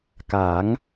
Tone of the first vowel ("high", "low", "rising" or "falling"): rising